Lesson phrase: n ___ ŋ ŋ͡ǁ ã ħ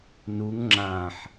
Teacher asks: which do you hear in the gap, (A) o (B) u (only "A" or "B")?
B